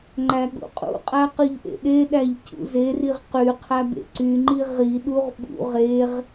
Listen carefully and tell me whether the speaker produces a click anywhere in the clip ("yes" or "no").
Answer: yes